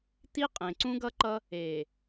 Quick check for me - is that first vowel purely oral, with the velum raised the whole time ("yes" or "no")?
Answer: yes